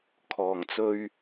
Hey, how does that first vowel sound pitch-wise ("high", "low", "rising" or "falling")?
low